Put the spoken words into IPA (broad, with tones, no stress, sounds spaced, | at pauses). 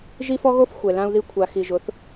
ʒ i˦ f ɔ˦ ɣ o˦ f xʷ ɛ˨ l ã˦ u̯ ð i˦ kʷʰ a˨ x i˨ ʒ ʊ˨˦ θ